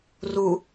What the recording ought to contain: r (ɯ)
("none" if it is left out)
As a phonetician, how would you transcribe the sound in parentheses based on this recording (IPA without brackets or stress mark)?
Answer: u